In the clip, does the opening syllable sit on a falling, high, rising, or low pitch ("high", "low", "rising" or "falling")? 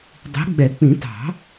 rising